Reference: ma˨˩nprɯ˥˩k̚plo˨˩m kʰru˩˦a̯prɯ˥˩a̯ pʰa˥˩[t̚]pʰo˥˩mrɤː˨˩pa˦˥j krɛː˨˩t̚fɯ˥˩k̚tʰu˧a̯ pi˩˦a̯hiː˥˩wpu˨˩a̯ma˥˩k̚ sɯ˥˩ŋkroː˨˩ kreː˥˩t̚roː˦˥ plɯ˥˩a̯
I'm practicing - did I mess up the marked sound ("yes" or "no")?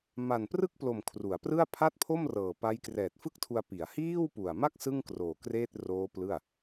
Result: no